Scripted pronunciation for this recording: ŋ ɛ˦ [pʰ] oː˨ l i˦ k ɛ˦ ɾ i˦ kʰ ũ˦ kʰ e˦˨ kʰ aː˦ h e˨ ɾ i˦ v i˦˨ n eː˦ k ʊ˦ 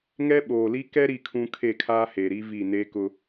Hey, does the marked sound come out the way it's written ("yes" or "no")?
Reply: no